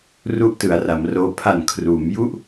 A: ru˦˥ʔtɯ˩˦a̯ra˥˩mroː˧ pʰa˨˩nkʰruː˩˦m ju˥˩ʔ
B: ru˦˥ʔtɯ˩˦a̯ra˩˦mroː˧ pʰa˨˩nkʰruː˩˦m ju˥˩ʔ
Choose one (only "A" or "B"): B